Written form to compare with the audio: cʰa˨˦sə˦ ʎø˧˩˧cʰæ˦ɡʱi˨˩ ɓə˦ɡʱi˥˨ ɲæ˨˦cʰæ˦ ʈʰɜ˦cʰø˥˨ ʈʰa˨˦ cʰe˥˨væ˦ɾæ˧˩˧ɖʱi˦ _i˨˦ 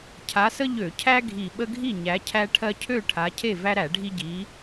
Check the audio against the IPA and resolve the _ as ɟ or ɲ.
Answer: ɟ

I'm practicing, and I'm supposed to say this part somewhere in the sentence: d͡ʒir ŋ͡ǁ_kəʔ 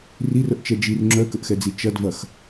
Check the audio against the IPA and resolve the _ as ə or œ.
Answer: œ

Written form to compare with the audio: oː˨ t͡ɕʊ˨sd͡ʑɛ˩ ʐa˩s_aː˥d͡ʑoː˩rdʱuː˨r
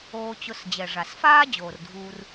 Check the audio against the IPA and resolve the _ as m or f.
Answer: f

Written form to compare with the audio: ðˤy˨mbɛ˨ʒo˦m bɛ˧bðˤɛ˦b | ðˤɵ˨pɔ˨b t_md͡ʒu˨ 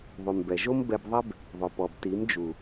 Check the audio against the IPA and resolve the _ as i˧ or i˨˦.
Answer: i˨˦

